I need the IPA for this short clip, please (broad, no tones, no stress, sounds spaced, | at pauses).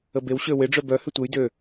ə b e w ɕ ø w ɪ ɖ͡ʐ œ b œ h ʏ tʷ e j d ø